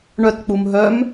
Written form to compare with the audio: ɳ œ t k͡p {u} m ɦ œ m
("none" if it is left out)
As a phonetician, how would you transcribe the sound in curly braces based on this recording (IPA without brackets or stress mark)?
u